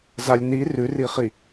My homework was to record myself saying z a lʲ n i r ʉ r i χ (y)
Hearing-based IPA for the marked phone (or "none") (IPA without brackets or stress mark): i